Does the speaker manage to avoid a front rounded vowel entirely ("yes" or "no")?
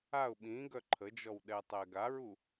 no